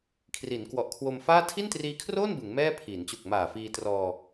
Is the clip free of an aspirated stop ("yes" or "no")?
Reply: no